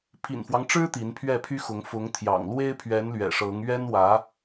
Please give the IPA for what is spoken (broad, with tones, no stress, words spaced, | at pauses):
pʰḭ˨˩nfwɑ˦ŋʈ͡ʂɻ̩˥ t̪i˧˥npʰɥɛ˥˩pʰy˥xʊ˧˥ŋ fʊ˧˥ŋt̪ʰjɑ̰˨˩ŋ lwe˥ɪ̯pʰɥɛ˧˥nlɥɛ̰˨˩ ʂɤ˧˥ŋ ɥɛ˥nwä˧˥